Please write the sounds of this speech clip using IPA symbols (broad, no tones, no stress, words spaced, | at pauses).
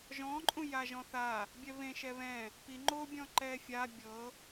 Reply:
ʒɔ̃ǃʼũ jaʒɔ̃θa | bʲɛβẽʃɛ βɛ̃ | pi ŋ͡ǃobʲɔ̃ ǃɛfʲa bʲɤ